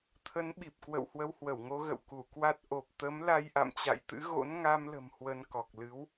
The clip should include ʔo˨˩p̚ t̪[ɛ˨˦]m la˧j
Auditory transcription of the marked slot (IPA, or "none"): ə˨˦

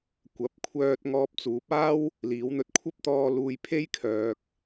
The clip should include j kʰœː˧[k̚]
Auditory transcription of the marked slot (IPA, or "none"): k̚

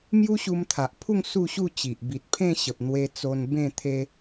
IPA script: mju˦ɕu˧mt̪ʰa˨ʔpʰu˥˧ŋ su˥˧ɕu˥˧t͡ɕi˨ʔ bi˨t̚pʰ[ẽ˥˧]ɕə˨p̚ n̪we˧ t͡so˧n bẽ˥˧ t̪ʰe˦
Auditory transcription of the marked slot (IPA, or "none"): ẽ˥˧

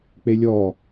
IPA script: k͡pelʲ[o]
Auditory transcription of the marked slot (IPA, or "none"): ɔ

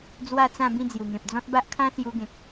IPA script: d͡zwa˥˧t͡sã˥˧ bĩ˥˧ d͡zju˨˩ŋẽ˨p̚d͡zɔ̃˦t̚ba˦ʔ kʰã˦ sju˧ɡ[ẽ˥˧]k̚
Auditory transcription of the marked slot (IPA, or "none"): ẽ˨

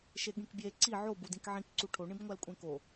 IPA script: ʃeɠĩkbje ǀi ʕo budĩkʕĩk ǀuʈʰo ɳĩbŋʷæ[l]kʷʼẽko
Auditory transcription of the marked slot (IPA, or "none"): l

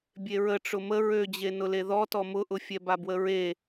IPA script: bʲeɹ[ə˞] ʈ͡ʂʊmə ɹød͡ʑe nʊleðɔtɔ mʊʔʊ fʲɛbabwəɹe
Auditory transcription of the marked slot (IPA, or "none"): ə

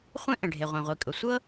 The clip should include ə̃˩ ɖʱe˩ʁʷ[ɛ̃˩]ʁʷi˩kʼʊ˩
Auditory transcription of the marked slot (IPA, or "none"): ɛ̃˩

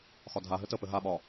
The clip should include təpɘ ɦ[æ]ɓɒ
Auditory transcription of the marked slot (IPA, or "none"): a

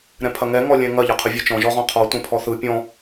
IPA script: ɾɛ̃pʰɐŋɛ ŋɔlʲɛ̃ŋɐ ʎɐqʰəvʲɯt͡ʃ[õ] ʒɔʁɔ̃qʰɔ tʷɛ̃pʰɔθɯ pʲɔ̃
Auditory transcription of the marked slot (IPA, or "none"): ɔ̃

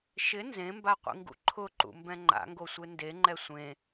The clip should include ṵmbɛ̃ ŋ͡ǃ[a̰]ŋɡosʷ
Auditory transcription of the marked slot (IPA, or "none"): a̰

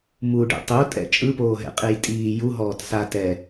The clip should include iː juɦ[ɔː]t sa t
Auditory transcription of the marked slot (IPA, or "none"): ɔː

